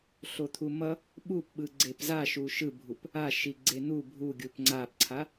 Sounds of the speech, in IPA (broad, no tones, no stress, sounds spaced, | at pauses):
ɬ o t̪ʰ u m ʌ | ɓ u p ɓ ɯ ɡ͡ǀ e p z a ʃ u ʃ ɯ bʱ u p | a ʃ i ɡ͡ǀ e n̪ u bʱ u ɡʲ u p ŋ͡ǀ a p ǀʰ a